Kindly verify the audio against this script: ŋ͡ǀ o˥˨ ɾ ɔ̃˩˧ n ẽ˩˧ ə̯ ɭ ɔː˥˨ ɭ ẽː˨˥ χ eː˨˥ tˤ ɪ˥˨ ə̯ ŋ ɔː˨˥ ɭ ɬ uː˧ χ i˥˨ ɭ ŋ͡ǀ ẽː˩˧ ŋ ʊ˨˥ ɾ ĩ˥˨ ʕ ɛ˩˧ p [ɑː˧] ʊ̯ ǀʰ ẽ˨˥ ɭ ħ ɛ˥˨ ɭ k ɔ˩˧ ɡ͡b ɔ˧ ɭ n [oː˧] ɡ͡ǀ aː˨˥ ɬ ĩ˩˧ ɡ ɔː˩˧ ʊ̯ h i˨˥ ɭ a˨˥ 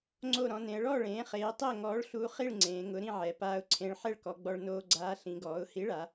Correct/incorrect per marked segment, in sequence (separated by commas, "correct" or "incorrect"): incorrect, correct